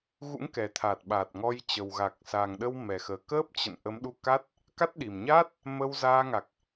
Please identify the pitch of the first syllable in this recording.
rising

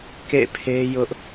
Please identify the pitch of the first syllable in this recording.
falling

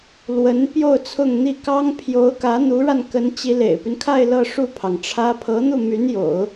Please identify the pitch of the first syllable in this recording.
rising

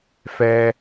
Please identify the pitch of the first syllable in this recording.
high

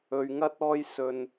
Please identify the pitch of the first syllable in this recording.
low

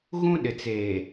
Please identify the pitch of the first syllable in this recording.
high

